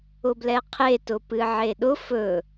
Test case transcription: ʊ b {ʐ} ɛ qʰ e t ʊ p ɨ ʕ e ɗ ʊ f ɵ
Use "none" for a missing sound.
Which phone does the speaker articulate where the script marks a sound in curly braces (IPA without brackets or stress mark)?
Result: l